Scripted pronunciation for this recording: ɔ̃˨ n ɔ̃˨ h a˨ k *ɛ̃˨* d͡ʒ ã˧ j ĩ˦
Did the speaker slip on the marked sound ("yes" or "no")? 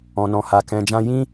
no